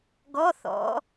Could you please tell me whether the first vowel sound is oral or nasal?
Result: oral